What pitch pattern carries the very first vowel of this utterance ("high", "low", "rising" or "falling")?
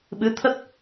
rising